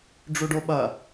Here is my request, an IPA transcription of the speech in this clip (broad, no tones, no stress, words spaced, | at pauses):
ɖ͡ʐuɖoɓɐ